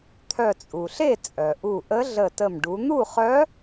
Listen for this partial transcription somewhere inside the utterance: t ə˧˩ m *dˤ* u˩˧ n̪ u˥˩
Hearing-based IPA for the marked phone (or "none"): ɖ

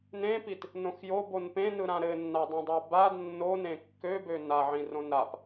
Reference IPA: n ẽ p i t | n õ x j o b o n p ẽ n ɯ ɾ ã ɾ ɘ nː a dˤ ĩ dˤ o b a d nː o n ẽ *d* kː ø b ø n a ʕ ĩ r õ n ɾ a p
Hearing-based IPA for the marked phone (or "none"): none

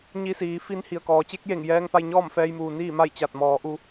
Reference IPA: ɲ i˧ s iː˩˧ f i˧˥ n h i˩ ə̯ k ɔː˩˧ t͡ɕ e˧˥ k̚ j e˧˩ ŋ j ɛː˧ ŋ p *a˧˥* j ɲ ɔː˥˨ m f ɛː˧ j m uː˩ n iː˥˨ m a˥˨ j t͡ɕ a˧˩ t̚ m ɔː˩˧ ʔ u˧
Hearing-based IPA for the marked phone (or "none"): a˧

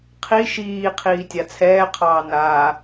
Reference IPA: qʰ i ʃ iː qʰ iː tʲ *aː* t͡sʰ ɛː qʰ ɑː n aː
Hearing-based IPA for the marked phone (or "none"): a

